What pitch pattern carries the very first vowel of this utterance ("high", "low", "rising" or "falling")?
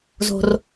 low